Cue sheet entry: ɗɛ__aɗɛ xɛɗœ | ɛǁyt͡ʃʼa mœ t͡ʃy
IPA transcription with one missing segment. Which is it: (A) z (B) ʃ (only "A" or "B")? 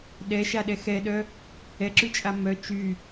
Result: B